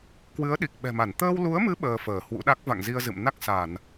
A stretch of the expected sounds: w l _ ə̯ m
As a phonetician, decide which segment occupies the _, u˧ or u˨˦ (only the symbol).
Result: u˨˦